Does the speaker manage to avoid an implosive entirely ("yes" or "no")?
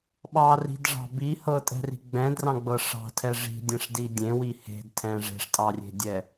no